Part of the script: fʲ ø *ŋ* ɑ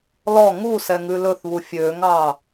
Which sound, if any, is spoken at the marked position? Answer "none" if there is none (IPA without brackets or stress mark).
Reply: ŋ